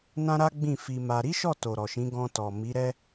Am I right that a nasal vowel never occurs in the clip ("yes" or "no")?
no